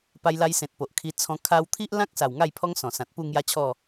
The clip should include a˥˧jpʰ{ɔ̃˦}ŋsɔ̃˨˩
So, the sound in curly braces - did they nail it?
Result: no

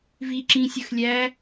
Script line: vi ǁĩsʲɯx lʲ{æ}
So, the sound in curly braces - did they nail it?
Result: yes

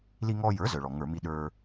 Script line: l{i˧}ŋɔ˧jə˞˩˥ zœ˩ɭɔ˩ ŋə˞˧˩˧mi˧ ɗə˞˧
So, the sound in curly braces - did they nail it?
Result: yes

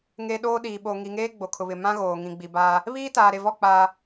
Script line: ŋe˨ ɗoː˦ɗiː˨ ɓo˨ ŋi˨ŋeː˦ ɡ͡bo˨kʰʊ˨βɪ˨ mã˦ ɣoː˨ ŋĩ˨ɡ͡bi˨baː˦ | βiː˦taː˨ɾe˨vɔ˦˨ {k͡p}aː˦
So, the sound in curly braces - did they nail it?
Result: yes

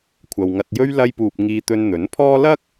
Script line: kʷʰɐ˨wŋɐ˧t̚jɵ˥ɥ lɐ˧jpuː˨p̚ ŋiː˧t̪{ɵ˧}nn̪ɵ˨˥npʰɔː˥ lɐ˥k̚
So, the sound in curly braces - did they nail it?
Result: yes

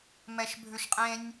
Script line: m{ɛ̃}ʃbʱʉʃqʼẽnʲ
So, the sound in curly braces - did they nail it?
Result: no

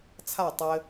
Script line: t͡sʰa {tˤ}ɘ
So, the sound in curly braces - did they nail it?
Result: yes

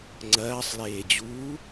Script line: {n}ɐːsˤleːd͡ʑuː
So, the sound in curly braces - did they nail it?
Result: no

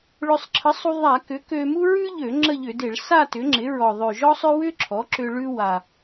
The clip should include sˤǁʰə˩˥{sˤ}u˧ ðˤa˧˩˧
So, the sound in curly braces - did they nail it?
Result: yes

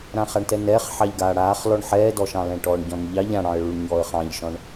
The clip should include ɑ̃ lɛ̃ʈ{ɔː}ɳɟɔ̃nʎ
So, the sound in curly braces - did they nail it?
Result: yes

